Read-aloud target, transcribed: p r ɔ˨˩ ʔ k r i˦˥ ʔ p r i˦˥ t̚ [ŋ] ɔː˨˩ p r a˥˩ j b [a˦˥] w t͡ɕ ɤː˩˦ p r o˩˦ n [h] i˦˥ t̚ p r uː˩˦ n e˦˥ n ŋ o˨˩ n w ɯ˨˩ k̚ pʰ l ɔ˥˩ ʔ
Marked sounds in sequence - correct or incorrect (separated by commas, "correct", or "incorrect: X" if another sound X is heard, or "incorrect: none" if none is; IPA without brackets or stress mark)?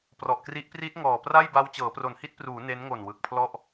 correct, correct, correct